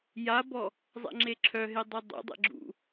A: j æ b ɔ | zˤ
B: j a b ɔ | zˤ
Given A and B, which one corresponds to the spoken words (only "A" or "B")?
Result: B